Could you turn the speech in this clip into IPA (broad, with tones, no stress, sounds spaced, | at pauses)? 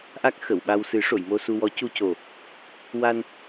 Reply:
ʔ a˦˥ k̚ x ə˨˩˨ w ɓ a˧ w s ɨ˨˩˦ ʂ o˨˩˨ j m o˧ s u˧ w ɔ˧˥ c u˧ c o˨˩ | w a˧ n